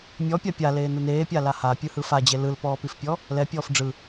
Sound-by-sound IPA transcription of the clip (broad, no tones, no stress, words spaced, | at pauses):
mʲɔpʲa pʲa leːnɯneːpʲa laha pʲɯhɯfad͡ʑe lɯlpɔːpifpʲɔ | lɛpʲɔːf ɖ͡ʐɯ